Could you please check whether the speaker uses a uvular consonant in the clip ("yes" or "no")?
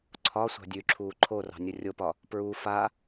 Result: no